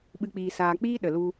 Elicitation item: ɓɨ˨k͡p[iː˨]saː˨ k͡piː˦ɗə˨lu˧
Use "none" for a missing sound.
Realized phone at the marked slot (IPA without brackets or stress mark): iː˨